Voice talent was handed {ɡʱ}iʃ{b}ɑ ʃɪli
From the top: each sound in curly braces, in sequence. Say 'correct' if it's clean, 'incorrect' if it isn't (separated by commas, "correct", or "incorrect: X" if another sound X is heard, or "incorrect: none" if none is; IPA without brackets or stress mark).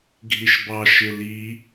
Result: correct, correct